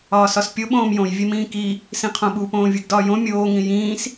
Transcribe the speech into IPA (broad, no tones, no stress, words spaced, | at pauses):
ɒːsɒspʲo ɓõːmjõj vʲemĩːki | sĩqʰõɓu põːvʲuɡdɒːjõ mʲoː ŋĩjĩːs